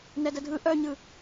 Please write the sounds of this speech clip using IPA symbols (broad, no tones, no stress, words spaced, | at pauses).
nɛdədʱɯ ʔœɲɯ